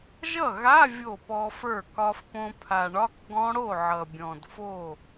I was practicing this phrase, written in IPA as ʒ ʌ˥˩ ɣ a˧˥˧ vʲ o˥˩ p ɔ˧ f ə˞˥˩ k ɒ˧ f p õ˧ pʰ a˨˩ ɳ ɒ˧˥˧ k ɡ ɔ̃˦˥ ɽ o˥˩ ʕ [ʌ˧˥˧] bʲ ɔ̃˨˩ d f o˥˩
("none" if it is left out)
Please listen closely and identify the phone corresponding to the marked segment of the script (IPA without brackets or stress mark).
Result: ʌ˨˩